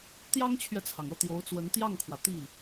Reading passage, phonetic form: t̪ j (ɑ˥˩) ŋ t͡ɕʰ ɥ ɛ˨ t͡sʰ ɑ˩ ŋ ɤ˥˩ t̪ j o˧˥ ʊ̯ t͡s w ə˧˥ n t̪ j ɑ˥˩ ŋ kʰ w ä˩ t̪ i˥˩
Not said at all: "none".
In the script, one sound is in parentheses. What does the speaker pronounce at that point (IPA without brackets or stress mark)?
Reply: ɑ˥